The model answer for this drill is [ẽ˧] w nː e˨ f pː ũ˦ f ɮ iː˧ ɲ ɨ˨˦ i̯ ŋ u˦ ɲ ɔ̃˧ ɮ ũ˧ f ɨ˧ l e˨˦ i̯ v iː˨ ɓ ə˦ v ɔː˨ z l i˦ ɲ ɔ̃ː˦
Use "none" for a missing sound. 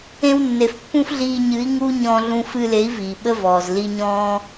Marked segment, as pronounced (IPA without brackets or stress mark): ẽ˧